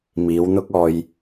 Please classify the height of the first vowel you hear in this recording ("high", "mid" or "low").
high